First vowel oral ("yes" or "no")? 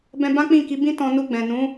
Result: no